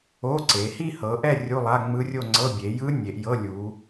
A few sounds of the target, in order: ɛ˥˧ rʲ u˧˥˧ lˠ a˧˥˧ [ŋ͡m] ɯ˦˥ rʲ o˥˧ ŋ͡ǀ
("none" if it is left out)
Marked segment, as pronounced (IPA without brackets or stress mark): ŋ͡m